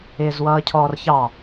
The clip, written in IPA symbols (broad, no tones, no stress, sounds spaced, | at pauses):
ɪː z w ʌː cʰ ɔː r ç ɑ